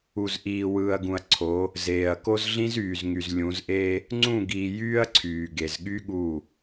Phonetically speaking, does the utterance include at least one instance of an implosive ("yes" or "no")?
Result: yes